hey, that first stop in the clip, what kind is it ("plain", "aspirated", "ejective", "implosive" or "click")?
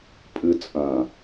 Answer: ejective